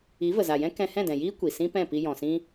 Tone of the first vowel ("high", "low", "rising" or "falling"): rising